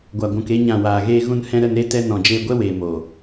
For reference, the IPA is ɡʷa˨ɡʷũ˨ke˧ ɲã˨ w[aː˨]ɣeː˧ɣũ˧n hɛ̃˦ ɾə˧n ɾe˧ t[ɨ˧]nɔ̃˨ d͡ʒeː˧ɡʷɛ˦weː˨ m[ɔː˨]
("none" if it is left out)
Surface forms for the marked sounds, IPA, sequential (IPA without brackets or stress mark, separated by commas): aː˨, ɛ˧, oː˨